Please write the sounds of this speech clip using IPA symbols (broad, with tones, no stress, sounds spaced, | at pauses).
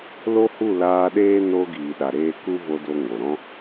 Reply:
l o˦ h u˦˨ l aː˧ ɗ eː˦ n o˧ ɡ iː˨ ɗ a˨ ɾ eː˧ k u˦ v o˧ d o˧ ŋ o˨ ɾ ɔ̃˦